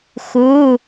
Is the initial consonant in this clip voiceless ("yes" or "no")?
yes